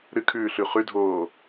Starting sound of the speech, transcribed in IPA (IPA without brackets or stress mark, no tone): ɾ